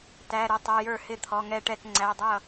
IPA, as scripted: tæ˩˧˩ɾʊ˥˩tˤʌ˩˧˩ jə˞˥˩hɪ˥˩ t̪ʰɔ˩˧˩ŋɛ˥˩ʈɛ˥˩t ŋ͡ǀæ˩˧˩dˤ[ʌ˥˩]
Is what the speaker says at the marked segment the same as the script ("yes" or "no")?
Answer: yes